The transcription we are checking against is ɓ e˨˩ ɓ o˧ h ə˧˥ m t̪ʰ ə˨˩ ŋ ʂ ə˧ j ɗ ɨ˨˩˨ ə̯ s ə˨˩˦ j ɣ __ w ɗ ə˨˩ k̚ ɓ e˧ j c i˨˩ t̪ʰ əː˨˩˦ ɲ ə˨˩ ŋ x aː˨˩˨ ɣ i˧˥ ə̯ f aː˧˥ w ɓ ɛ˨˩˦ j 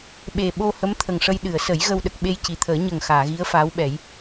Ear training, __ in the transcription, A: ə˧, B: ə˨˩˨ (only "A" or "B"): A